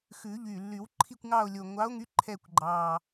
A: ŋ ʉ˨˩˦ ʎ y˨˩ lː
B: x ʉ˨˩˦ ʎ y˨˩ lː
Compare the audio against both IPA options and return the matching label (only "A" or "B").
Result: B